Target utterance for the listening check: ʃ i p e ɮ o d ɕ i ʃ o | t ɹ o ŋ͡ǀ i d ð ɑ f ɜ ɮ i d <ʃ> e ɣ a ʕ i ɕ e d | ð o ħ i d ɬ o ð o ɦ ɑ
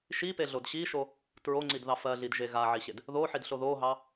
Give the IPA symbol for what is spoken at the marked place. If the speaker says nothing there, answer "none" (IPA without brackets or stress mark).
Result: ʒ